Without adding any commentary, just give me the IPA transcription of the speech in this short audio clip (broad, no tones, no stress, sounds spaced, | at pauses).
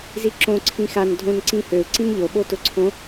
z i ǁ õ ǀʰ ĩ x a n dʱ õ n ǀ ĩ h ø u̯ ǀ ĩ n ʎ o ɓ o t ʊ ǀʰ õ